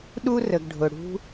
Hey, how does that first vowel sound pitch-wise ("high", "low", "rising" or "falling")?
high